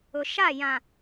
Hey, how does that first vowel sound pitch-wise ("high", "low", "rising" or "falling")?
low